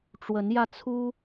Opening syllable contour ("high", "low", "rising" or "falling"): rising